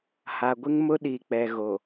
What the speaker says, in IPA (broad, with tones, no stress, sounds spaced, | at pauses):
h a˨ ɡʷ ɪ˦ ŋ m ʊ˦ ɗ i˨ k͡p ɛ˨ ɣ o˨